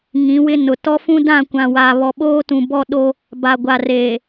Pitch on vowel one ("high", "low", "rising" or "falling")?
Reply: rising